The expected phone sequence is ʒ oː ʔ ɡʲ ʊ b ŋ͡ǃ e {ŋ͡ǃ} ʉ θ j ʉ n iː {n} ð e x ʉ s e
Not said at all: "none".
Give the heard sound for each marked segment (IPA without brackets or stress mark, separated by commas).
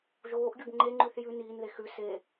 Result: ŋ͡ǃ, n